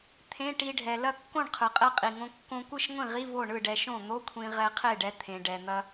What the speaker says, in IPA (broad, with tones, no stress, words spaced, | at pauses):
t̪ʰẽ˧˥˧ʈi˧ɖʱɛ˩ lɐ˥˩kːõ˥˩ɳqʰɯ˩qʼɛ˧ qʼi˩ŋõ˧ kːõ˧kʷɯ˥˩ʃŋʷĩ˥˩ʁi˧˥˧ vo˥˩ɳɯ˥˩ɖɛ˧ʃõ˥˩ n̪o˧˥˧kʷʰĩ˧ ʁɛ˧qʰe˥˩ɖɛ˧ t̪ʰẽ˩ ɖɛ˩n̪ɐ˧